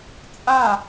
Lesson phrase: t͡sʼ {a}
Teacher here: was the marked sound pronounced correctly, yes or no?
yes